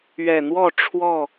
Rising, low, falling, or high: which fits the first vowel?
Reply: low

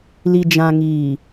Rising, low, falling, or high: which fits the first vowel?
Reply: low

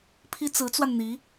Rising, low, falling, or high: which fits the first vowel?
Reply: high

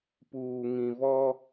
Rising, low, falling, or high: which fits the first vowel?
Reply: low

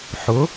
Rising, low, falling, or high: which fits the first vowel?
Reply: rising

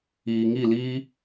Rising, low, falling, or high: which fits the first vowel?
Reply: low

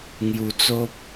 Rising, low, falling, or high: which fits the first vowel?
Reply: low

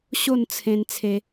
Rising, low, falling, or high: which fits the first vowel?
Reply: falling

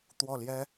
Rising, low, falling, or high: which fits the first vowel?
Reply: falling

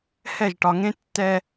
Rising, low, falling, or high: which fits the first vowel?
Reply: falling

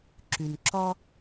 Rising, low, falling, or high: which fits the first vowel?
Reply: low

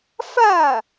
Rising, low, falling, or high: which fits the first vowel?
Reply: falling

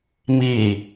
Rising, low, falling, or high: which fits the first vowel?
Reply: low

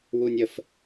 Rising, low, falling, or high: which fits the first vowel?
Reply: high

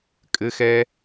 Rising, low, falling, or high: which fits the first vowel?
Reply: high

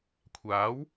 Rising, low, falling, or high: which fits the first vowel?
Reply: rising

